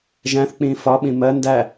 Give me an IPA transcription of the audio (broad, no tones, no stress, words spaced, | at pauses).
ʒæ̃θk͡pĩː fɒɓĩ mɜ ndæ